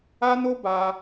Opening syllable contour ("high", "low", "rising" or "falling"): high